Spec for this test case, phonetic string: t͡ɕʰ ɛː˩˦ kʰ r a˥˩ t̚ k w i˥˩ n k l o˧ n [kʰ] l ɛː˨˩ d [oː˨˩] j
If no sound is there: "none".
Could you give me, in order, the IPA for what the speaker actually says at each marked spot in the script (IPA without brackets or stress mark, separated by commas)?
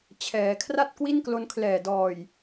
kʰ, ɔː˨˩